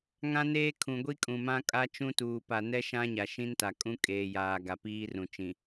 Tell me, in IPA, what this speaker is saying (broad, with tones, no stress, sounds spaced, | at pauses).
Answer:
ŋ ã˦ n eː˦ kʰ ũ˨ ɡʷ i˦ kʼ ũ˨ m ã˦ kʼ a˦ t͡ʃ ũ˦ t uː˨ p a˨ n ɛ˦ ʃ ã˦ ɲ a˨ ʃ ĩ˦ n t a˨ kʼ ũ˦ kʼ eː˨ j aː˨ ɡ a˨ p iː˦ r ũ˨ t͡ʃ ĩ˨